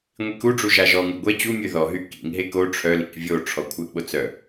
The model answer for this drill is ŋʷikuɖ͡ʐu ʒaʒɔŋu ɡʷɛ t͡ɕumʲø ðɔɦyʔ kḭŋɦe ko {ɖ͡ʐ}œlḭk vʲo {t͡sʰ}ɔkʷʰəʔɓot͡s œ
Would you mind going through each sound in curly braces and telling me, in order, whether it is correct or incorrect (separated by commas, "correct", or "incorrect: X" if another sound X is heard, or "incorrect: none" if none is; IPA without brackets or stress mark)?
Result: incorrect: ʈ͡ʂʰ, incorrect: ʈ͡ʂʰ